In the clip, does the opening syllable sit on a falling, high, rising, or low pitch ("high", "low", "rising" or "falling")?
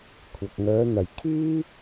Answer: low